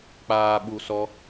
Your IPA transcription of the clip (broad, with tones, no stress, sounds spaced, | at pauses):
k͡p aː˨ ɓ u˨ s ɔ˧